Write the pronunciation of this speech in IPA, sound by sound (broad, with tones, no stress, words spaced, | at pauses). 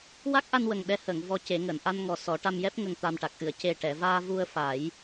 wa˦˥k̚ʔa˧nwə˨˩ŋ ɗɛ˧˥həː˨˩˨ŋ vɔ˧ce˨˩˦ŋəː˨˩˨n ʔa˧nŋɔ˨˩ sɔ˨˩˦ʈa˧mjɛ˦˥p̚ ŋə˨˩ŋt̪a˨˩mʈa˨˩k̚ ʔɨ˨˩˨ə̯ce˨˩ ʈɛ˨˩˨vaː˧ vu˧ə̯fa˨˩˦j